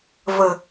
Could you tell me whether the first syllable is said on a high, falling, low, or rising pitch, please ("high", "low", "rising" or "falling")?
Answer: low